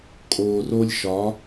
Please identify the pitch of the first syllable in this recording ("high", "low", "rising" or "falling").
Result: low